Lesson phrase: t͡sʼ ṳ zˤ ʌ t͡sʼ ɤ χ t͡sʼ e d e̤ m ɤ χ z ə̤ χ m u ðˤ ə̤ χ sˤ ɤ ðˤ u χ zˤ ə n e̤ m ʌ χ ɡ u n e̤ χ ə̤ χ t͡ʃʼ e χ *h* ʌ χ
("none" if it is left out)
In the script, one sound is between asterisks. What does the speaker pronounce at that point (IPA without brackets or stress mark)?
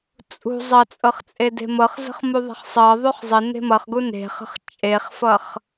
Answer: f